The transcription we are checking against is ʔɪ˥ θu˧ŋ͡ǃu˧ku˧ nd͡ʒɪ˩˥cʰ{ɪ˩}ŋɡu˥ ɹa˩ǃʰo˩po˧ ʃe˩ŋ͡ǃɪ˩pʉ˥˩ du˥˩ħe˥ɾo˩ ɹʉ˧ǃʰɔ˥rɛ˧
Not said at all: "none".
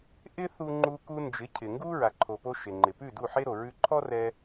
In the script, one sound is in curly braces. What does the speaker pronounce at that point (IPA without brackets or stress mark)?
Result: ɪ˩